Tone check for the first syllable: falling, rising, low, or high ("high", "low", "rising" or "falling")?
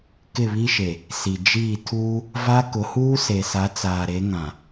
falling